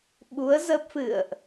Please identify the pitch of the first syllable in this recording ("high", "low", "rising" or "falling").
rising